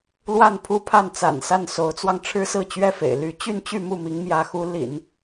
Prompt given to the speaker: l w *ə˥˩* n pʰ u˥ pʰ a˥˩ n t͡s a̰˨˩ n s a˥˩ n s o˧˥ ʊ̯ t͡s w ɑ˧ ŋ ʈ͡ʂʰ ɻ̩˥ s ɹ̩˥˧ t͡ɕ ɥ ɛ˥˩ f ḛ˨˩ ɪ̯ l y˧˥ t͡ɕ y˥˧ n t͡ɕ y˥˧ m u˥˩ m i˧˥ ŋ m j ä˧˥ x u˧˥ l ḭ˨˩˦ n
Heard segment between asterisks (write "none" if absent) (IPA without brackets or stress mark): a˥˩